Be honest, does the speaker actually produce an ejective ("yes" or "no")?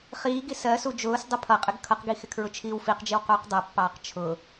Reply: yes